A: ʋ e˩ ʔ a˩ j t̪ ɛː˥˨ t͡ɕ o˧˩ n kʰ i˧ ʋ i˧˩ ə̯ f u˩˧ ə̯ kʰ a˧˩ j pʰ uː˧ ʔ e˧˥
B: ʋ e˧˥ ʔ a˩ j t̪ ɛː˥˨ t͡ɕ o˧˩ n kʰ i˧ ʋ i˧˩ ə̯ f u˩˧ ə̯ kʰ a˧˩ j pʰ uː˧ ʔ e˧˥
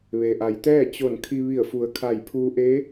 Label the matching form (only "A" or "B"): A